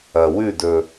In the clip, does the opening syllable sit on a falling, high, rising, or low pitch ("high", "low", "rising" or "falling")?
low